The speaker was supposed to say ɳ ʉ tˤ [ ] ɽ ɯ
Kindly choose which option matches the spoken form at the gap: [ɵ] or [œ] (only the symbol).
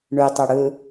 œ